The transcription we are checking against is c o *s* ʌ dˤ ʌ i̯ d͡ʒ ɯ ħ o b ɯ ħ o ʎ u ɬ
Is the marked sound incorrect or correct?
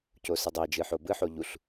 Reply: correct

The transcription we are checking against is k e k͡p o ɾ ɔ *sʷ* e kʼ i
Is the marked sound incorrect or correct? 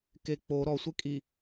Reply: correct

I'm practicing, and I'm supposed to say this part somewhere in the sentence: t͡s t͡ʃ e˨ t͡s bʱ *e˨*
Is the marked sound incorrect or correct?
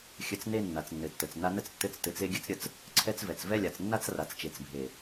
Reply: correct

